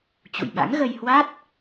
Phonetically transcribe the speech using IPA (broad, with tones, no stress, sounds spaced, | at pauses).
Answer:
t͡ɕ ṵ˧˨ j ɓ a̰˧˥ ŋ ɣ ə˧ j h w a˦˥ t̚